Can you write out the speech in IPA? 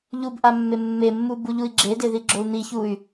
ʎubʔamːe mːemːubuʎui̯ ɡ͡ǁedeðiɡ͡ǁou̯ n̪içuy̯

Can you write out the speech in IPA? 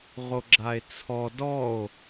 ʁoɡ͡ǁae̯t͡sʰɔ dɔo̯

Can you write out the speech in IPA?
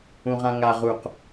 ũʁãŋa ʁuq

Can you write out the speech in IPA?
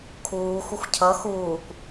kʰuː xʷɪxʷcʰʌ xuːkʷ

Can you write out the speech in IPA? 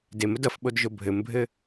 deməd ʌfɓodʒo bʱɘmbʱɘ

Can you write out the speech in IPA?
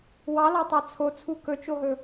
wɑlɑtˤɑ t͡sʰot͡sʰu kɵt͡ʃoɦɵ

